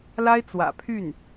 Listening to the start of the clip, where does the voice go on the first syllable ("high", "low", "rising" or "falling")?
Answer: high